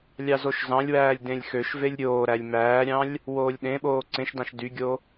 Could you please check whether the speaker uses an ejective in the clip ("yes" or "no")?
no